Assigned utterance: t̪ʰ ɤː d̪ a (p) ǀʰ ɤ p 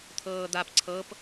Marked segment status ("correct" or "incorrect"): correct